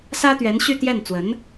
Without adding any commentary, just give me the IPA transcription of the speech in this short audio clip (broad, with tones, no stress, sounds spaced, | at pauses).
s ä˥ t̪ ɥ ɛ˧˥ n ɕ y˥˧ t̪ j ɛ˥˩ n t͡s w ə˧˥ n